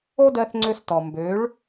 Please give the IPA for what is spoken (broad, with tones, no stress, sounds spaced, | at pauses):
o˦ d ɜ˧ θ ŋ͡ǀ ø˧ s t ɔ˨ m b ø˨˦ ɭ